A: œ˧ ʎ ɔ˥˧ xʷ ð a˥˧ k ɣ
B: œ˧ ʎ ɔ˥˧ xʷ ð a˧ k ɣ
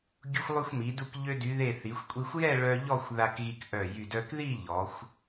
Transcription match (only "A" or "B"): B